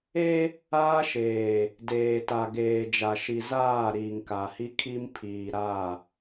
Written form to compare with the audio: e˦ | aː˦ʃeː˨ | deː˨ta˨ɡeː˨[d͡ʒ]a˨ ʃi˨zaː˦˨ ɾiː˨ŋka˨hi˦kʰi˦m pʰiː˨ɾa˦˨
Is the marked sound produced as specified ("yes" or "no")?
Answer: yes